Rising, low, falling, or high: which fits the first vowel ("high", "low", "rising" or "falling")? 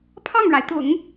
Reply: falling